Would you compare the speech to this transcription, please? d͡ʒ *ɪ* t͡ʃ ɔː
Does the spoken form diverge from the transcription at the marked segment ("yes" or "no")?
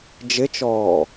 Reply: no